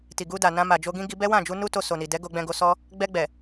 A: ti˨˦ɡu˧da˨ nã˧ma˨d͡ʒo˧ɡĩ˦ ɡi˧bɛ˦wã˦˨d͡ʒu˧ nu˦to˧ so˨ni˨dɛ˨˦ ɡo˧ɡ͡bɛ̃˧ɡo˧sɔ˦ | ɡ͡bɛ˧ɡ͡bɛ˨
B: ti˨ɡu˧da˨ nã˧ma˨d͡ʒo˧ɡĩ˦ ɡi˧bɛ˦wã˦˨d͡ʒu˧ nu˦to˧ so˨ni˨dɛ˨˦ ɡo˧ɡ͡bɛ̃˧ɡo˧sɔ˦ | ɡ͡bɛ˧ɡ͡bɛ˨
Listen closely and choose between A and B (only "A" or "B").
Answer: B